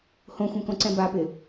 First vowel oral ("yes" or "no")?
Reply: no